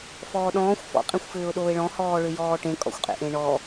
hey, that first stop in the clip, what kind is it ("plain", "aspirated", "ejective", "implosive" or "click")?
implosive